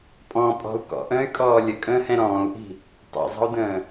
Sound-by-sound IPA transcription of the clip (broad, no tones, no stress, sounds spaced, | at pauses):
pʼ ɔ̃ pʼ ɔ̤ u̯ k ɔ̰ ʔ ə̃ː y̯ kʼ ɔː lʲ ə kʼ ə̃ː h ɛ̃ ɾ ɔ̃ː u̯ ʔ i̤ | tˤ ḭ zˤ ə̤ u̯ d ə̃ː